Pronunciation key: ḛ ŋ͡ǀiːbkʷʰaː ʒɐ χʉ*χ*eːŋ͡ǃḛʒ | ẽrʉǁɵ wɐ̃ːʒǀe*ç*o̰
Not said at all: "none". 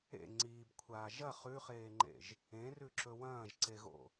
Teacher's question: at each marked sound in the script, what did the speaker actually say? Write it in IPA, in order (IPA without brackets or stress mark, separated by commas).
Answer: χ, ɣ